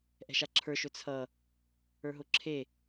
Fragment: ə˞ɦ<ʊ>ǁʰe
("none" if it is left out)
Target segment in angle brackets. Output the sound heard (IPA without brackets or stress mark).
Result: ʊ